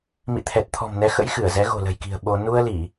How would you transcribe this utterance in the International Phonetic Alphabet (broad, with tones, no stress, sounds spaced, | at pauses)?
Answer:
m ḭ˧˨ t̪ʰ ɛ˨˩ t̚ t̪ʰ ɔ̤˨˩ m n ɛ˨˦ x ə̰˧˥ j x ɨ˧˩ ə̯ z ɛ˨˦ ɣ o̤˨˩ l ə̤˨˩ j k i̤˨˩ ə̯ ɓ o˧ n u˧ ə̯ l i˧˩˨